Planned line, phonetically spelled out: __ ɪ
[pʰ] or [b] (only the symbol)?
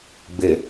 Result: b